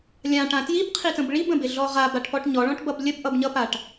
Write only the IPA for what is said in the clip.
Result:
lʲ ã ʈ ã t j i b qʰ i t ə̃ b ɭ i b ə̃ b ɪ ɮ ɔ ʁ a b a ʈ p ɔ ʈ ɲ ɔ ɭ ɔ̃ ʈ b ʌ b lʲ ə b ʔ ʌ b ɲ ʌ p a ʈ

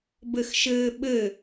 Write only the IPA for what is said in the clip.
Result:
b ɘ x ʃ ɘː ɓ ɘ

